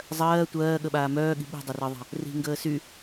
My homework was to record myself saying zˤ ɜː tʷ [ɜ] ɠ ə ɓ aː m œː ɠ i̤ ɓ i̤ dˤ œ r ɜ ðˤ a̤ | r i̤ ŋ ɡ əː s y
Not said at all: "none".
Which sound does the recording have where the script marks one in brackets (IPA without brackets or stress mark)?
ɜː